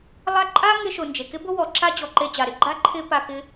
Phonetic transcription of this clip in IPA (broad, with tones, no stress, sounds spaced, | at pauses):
lˠ a˦ ǃʼ a˥ ŋ ɪ˦ ʃ ʊ˨ n d͡ʒ e˩ k ɪ˥ b ʊ˥ w ɔ˨ ǁ a˥ d͡ʑ ɔ˨ ǃ e˦ d͡ʑ a˩ ɾ ɪ˥ ɡ͡ǃ a˥ ǃʰ ɪ˥ p a˦ k ɪ˥